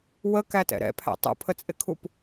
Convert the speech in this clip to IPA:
w ə k æ t ɛ̰ ɾ ɛ̰ pʰ æ̰ tˤ ṵ pʰ ə t͡sʼ ɪ kʰ u p

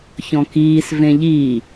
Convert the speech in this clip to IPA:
ç ɔ̃ k iː s v ẽ ʎ i

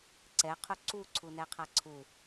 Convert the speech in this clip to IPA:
ǀ ɛ qʰ u ǀ u ǀʰ u n ɛ qʰ a ǀʰ u

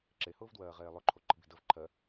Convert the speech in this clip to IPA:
ǁ e h ʊː v d w ɜː ʁ eː lˠ ʊ ǃʰ o ǃ ə̤ b i̤ d ə v ǃʰ ɜ

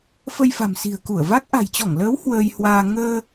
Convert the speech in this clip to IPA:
f ə˧ j f a̤˨˩ m s i̤˨˩ ə̯ k u˧˩ ə̯ v a˦˥ k̚ ʔ a̤˨˩ j t͡ɕ ɔ˧˩ ŋ l əː˨˦ w h w əː˧ j h w aː˧ ŋ əː˧

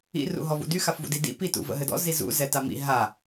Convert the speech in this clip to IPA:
ḭ r ṵ ɦ ɔ v ṵ d y x a f v ṵ d i d ḭ p i t ṵ v ə̰ ɦ ɘ d ɔ̰ z i z ṵ z ɛ t a m ḭ ɦ a

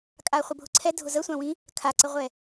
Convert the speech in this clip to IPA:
kʼ a χʷ ə bʱ ʊ ǀʰ ɛ dʱ ʊ z ə sʷ ã w ĩ | kʰ a ǀ ə ʁʷ ɛ

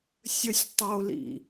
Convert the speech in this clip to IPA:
sʲ ə sʲ tˤ o l ḭ

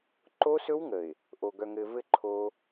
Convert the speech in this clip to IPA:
ǃ o˦ s ɵ˦ w ŋ ə˨ ɪ̯ | ʔ o˨ ɡ œ˨ ŋ ɘ˨ v ɘ˦˨ ǃʰ o˦

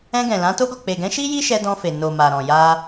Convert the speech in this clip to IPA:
ɛ̃˧ ɡ ɛ̃˨ l ã˨˦ t o˦ ɡ ɔ˦˨ k͡p e˨ ɡ ɛ̃˨˦ ʃ i˦ j i˦ ʃ ɛ˧ d ɔ̃˧ f e˨ n o˨ m a˨ ɾ ɔ̃˨ j a˧

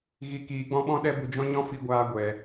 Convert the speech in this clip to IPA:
ɣ i˨ k iː˨ ɡ͡b ɔ̃˧ ɓ ɔ̃˧ ɗ ɛ˧ b u˨ d͡ʒ ɔ̃˦ ɲ ɔ̃˦ f i˧ ɡʷ aː˧ ɡʷ ɛ˨

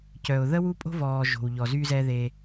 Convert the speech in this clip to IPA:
c œ˨ ʊ̯ ð ə˦ w u˦ pʼ o̤˦ v ɔː˨ ʒ o̤˨ w ʎ ɔ˨ z y˦ z ɛ˦ ð e˦

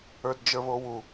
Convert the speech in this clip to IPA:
ə˞ d d͡ʒ ə˞ β o w u

